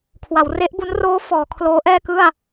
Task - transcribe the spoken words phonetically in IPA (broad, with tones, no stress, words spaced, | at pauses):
kʰwa˩˦wre˦˥ʔbu˦˥n roː˦˥ fɔː˩˦ kʰloː˦˥ʔɛː˥˩kɯ˥˩a̯